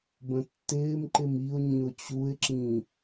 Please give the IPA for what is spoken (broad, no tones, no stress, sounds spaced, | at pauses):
b ə̃ tː ɪː m ǃ ɪ m i ʊ̯ ɲ ĩ ʊ̯ t͡ɕ u ɪ̯ ǁ ĩ